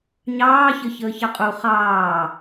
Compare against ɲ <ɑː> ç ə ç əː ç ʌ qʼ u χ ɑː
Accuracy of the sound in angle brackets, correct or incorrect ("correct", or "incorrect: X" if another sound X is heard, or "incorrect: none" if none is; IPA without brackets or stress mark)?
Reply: correct